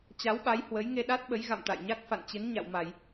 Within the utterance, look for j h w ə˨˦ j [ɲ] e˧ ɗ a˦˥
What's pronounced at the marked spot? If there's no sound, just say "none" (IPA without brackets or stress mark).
ŋ